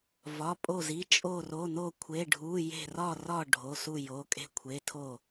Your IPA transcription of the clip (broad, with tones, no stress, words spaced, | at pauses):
vɒ˩˧˩pʼo˧˩zi˩˧˩ t͡ʃʼo˧˩ro˩˧˩no˧˩ kʷʰe˩˧˩ɖʱu˩˧˩ je̤˧˩rɒ˧˩rɒ˧˩ ɖʱo˩˧˩su˧˩jo˩˧˩ kʼe̤˧˩kʷʰe˩˧˩tʰo˧˩